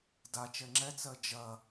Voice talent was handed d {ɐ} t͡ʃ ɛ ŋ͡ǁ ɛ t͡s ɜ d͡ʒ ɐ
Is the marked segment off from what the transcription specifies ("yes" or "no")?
yes